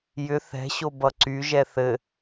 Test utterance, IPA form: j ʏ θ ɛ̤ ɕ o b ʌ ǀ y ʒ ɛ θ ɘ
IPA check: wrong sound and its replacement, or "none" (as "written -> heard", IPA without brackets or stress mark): none